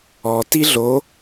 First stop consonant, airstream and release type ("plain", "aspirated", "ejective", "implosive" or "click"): plain